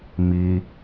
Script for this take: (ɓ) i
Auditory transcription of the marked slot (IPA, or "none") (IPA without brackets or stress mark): m